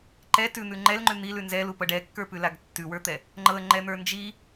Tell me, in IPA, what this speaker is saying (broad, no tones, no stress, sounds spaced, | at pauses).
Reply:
ǃ ɛ t ʉ n̪ ʉ ŋ͡ǃ ɛ l ŋ͡ǃ ʉ n̪ i l ʉ n z ɛ l u p ɤ ɖ ɛ kː ə˞ p ʉ l a ɡ tː ʉ w ə˞ t̪ ɛ | ŋ͡ǃ ɤ ə̯ ŋ͡ǃ ɛ n̪ ə˞ n d͡ʒ i